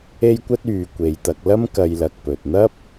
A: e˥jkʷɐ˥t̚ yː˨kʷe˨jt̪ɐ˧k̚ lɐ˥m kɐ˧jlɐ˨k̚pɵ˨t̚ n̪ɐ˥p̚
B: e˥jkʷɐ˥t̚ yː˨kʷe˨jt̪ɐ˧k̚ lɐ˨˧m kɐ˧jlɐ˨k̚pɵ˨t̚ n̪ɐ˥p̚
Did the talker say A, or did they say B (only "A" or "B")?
A